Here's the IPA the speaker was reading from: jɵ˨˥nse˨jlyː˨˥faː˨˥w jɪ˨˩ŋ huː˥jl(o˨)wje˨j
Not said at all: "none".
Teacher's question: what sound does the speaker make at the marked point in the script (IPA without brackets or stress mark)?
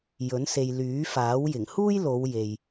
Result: o˨˧